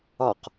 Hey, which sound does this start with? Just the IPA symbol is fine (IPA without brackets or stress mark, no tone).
ɒ